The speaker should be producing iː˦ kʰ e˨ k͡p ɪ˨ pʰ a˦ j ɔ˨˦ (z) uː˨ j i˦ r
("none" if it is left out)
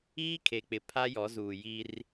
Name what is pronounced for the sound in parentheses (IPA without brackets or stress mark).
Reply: z